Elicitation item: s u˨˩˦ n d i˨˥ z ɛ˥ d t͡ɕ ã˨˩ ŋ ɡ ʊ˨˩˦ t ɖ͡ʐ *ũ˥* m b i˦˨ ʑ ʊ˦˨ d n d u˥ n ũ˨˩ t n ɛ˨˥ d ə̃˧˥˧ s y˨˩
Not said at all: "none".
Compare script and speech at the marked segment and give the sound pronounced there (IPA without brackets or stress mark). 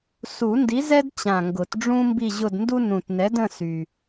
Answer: ũ˥